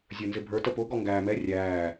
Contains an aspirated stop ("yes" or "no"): no